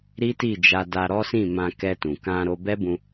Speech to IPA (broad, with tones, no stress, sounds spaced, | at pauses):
ɾ i˦ t i˦˨ d͡ʒ a˧ d a˧ ɾ ɔ˦ s ĩ˦˨ m ã˧ k ɛ˧ t ũ˨ k ã˧ ɾ o˧ b ɛ˦ b ũ˧